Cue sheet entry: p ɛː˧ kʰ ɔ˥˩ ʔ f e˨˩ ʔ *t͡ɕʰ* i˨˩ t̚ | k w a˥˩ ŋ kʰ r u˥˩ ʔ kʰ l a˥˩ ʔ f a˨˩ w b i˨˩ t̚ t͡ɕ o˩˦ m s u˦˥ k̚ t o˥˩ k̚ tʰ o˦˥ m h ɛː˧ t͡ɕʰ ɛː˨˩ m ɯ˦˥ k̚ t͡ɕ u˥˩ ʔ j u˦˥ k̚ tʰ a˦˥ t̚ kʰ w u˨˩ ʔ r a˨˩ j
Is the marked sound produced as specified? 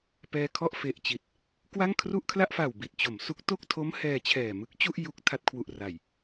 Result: no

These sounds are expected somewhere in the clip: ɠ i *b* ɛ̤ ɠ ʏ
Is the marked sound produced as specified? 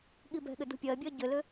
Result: yes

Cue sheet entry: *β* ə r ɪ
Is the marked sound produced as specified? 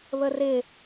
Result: yes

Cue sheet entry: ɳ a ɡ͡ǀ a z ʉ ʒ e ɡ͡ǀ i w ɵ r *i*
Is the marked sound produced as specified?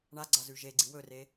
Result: no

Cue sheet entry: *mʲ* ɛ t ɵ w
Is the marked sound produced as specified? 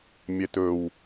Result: yes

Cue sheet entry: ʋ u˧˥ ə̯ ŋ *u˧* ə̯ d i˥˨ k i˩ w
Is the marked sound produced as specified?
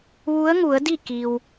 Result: no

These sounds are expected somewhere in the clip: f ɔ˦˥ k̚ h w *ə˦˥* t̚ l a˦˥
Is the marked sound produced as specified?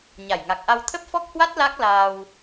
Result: no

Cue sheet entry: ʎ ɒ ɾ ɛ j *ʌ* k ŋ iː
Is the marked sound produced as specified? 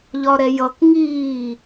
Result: yes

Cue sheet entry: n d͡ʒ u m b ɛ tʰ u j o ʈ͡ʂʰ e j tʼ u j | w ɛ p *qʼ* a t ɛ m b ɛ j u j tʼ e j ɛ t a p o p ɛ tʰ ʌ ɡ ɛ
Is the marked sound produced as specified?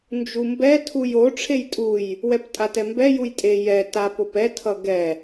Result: no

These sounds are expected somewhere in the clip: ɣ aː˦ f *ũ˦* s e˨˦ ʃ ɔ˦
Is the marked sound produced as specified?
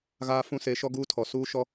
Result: yes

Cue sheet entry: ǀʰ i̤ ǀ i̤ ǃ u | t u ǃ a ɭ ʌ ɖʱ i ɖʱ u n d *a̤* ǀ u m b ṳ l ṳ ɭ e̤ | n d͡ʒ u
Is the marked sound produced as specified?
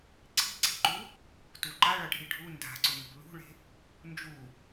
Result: yes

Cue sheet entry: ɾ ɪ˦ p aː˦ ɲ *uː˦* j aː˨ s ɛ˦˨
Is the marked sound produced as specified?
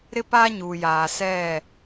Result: no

